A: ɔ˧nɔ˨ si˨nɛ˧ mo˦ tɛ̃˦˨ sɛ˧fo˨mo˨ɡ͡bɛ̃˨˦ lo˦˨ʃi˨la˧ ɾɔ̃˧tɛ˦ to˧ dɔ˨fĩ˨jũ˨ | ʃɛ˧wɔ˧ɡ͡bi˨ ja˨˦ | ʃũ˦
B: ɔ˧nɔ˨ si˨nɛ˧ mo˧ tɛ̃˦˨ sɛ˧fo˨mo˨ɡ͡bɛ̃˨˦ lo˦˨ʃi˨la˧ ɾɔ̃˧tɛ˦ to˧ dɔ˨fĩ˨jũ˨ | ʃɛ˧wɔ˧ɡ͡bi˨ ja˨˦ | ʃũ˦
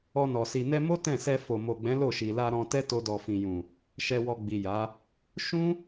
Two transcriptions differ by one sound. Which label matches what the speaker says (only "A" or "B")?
A